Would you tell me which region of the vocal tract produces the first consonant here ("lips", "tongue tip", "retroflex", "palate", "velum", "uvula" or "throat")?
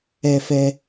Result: lips